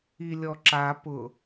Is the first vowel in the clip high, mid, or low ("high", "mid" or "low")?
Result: high